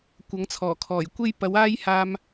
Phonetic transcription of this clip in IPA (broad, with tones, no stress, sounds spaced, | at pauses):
kʷ ɐ˨˥ ŋ t͡sʰ ɔː˨˩ kʰ ɔː˨˩ j kʷ e˥ j p ɐ˨˥ w aː˥ j h aː˧ m